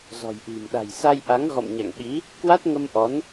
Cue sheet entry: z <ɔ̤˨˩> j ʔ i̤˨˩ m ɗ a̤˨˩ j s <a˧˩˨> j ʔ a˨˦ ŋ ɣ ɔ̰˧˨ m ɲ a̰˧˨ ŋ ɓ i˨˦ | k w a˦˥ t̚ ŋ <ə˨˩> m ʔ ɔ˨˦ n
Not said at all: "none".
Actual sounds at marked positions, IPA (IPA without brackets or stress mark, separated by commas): ɔ̤˨˩, a˧, ə˧